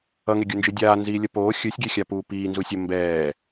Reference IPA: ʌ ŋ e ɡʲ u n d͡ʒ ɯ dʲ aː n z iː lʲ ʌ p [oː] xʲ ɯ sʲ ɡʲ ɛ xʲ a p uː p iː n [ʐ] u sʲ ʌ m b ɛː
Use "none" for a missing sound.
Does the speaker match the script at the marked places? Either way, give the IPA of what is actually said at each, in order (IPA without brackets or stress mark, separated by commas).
oː, z